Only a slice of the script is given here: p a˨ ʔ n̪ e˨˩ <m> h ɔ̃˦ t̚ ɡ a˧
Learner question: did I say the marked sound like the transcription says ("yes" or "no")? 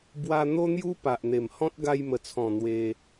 yes